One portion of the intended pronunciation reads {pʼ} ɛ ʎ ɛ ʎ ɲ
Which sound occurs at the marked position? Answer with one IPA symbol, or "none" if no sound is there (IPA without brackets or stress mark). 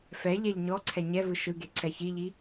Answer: f